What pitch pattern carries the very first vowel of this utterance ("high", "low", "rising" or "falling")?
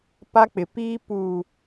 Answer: high